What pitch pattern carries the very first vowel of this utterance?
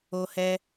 high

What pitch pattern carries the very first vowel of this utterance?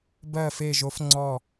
falling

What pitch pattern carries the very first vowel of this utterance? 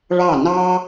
falling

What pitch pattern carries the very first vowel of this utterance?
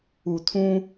low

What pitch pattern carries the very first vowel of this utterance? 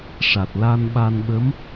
low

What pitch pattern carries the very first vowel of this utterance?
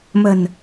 low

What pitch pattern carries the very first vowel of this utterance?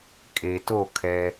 low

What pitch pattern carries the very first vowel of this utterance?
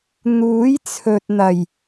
rising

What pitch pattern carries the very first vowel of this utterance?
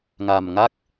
low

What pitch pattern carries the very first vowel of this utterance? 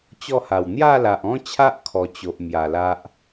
falling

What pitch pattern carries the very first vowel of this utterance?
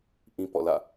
high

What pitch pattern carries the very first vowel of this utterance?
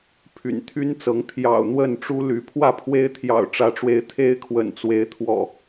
low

